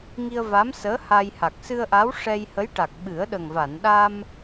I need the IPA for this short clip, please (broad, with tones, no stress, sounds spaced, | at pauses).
ŋ i˧ ə̯ v a˧˥ m s əː˧˥ h a˧ j h a˨˩ k̚ s ɨ˧ ə̯ ʔ a˧˥ w ʂ ɛ˧ j h ə˧˥ j ʈ a˨˩ k̚ ɓ ɨ˨˩˦ ə̯ ɗ ə˨˩ ŋ v a˨˩˨ n ɗ a˧ m